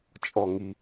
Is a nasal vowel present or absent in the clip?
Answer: absent